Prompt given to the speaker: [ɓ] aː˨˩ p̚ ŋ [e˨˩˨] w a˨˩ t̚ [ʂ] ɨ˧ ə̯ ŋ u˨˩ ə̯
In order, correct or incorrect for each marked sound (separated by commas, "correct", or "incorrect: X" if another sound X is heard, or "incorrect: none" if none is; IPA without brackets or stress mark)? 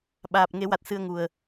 correct, incorrect: e˨˩˦, incorrect: s